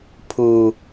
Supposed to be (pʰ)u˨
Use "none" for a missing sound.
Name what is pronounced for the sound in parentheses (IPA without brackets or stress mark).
pʰ